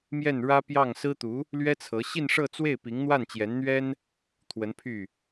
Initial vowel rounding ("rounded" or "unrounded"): unrounded